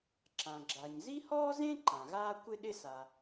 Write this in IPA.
ǁ ã˩ ɡ͡ǁ a˩ ɲ z i˥ h ɔː˥ z ẽ˥ ǃ ã˩ ɣ aː˥ kʷ ɪ˥ ɗ ɪ˥ s a˩

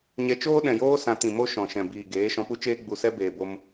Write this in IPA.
ɲ ɛ˧ t͡ʃ oː˦ ɗ ɛ̃˨ j oː˦ s ã˧ t ĩ˨ m o˦ ʃ ɔ̃˨ ʃ ɛ̃˨ b iː˨ ɡ eː˨˦ ʃ ɔ̃˧ p u˦ t͡ʃ eː˦ ɡ͡b u˨ s ɛ˦ b eː˨ b o˧ m

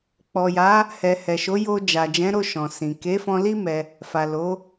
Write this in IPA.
k͡p ɔ˨ j a˨˦ | h ɛ˨ h ɛ˨ ʃ o˨˦ j o˧ d͡ʒ a˨ d͡ʒ ɛ̃˨˦ ɾ o˦˨ ʃ ɔ̃˨ s ĩ˨ k e˨˦ f ɔ̃˧ l i˦ m ɛ˧ | f a˨ l o˨˦

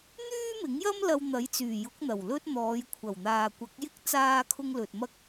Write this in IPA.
n̪ yː˥ m ɪ˨˥ ŋ j ɐ˥ m l ɐ˧ w n̪ ɐ˨˥ j t͡s yː˨˩ j ʊ˨˥ k̚ n̪ ɐ˨˩ w l ɵ˥ t̚ n̪ ɔː˨˧ j kʷʰ ɐ˨˩ w n̪ aː˨ kʷ ɐ˨˥ k̚ j ɪ˥ k̚ t͡s aː˥ kʰ ʊ˥ ŋ l ɵ˨ t̚ m ɐ˥ k̚

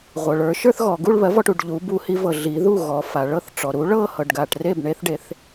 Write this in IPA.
ʁʷ ɤ˩ ɭ ə˞˩˧ ʃ ə˞˥˧ θ ɣ ɔ˩ ɡ u˥˧ ɭ β ɜ˩˥ v ɔ˥˩ ʈ u˩ ɖ ʎ u˩˧ b u˧˩˧ h i˩˧ v ɤ˩ ɮ i˩˧ ð u˥˩ ɣ ɔ˩˧ f a˩ ɭ ɤ˥˩ θ ʈ͡ʂ ɔ˩ ɾ u˩˥ ɭ ɤ˥˧ h ɤ˩ ɖ ɡ a˩ ʈ r e˥˩ b ɳ e˧˩˧ θ ɖ e˩˧ θ

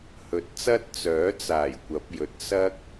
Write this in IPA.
h ɵ˨˥ t̚ t͡s ɐ˥ t̚ t͡s œː˨˥ t͡s aː˨˩ j kʷ ɐ˨˥ p̚ j ɵ˨˥ t̚ s ɐ˥ k̚

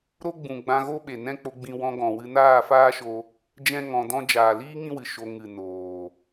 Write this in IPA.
ɾ o˦ ɡ͡b ũ˨ ɡ͡b ã˧ ɣ o˦ ɓ e˨ n ɛ̃˦ k͡p o˧ ɡ͡b ĩ˧ w ɔ̃˧ ɡ ɔ̃˨ w ɨ˧ n aː˦˨ f aː˦ ʃ o˧ | d͡ʒ ɛ̃˦ ŋ ɔ̃˧ d ɔ̃˦ d͡ʒ aː˨ l iː˦ ŋ ĩ˦ w ɨ˨ ʃ o˧ ŋ ɨ˨ n oː˨

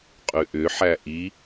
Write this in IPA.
qʼ ʉ ʔ ʏ ħ æ ʔ i

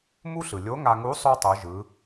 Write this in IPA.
m u˥ ɬ ɯ˩ lʲ o˧˥ ŋ a˧ ŋ u˧˥ sˤ o˥ tˤ u˩˧ ʒ ɯ˩˧

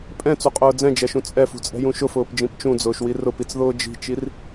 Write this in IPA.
pʼ ɛ̃ t͡s u qʼ ʊː d͡z ɛ̃ d͡ʒ ɛ ʃ ũ t͡sʼ ɛ f ṳ t͡sʼ ɛ̤ j ũ ʃ ʊ f ʊː p d͡ʒ ĩ p t͡ʃ ũ d͡z ʊː ʃ w i r ʊ p i t͡s ð ʊː d͡ʒ i̤ t͡ʃ i r

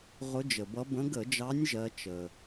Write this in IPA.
ʁ ʊ˨˦ d͡ʒ ə˩ b ʌ˨˦ b ə̃˨˦ ɡ ə˧˩˧ d͡ʒ ɑ˨˦ nʲ ʒ ɜ˨˦ t͡ʃ ə˩

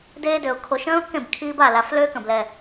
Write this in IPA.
d eː˦ d ø˨˩ ʊ̯ kʰ o˨˩˦ ʃ ə̃ː˦ ʊ̯ k ẽ˥˩ b kʰ iː˦ b a˥˩ l a˨˩˦ f l ø˦ k ə̃˨˩ b l ɛ˨˩

